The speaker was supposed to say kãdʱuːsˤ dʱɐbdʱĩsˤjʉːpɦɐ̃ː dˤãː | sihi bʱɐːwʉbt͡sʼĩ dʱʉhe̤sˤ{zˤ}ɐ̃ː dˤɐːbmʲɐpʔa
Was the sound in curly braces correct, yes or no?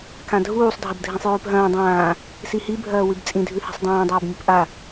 no